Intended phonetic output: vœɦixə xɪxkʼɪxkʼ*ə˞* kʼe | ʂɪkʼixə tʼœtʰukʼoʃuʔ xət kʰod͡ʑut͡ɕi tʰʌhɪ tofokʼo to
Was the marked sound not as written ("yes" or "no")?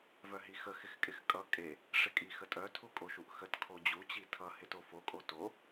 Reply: yes